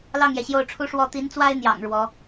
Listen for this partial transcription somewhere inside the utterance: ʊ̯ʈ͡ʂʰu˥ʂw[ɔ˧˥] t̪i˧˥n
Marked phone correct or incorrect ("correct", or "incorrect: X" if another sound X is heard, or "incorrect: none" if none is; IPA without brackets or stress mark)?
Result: incorrect: ɔ˥